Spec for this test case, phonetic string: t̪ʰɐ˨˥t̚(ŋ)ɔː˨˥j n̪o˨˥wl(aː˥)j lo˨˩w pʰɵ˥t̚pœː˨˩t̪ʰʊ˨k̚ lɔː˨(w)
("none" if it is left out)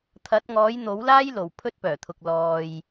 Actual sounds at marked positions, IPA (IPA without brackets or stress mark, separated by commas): ŋ, aː˥, j